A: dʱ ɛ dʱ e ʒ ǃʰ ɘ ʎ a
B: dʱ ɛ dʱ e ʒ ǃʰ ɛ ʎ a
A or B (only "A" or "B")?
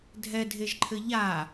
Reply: A